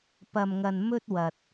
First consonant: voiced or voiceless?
voiceless